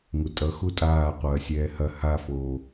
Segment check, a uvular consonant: present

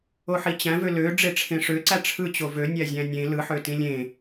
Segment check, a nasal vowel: present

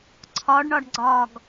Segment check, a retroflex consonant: present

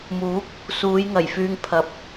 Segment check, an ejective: absent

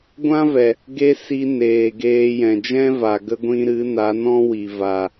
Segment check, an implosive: absent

